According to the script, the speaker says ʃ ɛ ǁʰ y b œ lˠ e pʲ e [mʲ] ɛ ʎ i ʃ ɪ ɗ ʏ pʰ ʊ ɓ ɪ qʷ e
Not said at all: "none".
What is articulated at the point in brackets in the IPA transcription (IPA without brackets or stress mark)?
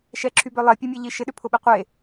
mʲ